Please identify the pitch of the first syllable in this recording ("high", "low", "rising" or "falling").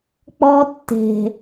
high